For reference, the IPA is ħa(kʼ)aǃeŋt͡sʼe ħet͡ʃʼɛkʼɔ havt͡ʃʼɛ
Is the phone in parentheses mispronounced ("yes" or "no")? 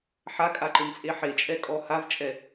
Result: no